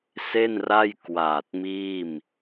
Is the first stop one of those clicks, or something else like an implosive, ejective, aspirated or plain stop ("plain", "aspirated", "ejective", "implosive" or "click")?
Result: plain